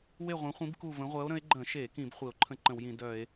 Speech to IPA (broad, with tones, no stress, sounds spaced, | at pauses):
w e˥˨ ʁʷ œ̃˨˥ χʷ ĩ˨˥ b k u˥˨ v ə̃˨˥ ʁʷ ɜ˨˥ o̯ ɾ ə̃˨˥ e̯ ɡ͡ǃ ə̃˧˩˧ ʃ e˧˩˧ k ĩ˧˩˧ b χʷ e˧˩˧ o̯ ǃʰ ə̃˥˨ ǃ ə̃˧˩˧ w j ĩ˧˩˧ d œ˧˩˧ e̯